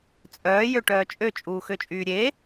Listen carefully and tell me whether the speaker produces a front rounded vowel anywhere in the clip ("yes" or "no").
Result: yes